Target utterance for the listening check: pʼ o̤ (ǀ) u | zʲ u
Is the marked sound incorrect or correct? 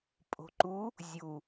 incorrect: ǃ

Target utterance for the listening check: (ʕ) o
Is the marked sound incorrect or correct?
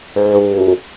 correct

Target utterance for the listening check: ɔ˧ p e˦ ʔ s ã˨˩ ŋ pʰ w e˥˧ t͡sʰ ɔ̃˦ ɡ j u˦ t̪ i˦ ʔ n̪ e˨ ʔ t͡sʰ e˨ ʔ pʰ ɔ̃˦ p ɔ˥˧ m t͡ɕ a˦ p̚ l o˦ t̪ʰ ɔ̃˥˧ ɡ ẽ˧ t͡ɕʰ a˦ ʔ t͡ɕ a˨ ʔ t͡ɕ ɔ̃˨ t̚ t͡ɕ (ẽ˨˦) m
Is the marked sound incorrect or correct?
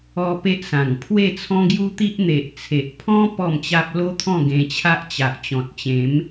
correct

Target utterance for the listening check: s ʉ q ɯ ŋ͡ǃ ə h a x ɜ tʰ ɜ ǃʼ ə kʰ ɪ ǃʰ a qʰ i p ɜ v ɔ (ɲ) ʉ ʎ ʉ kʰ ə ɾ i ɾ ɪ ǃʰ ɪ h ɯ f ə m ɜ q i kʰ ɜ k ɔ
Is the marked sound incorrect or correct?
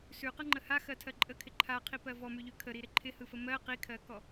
incorrect: m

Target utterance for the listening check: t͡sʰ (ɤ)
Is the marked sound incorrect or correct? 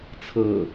correct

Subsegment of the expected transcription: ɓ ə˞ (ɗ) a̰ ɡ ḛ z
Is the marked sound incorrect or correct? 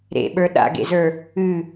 correct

